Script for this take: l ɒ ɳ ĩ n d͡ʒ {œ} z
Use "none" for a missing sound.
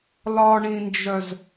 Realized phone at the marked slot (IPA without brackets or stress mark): œ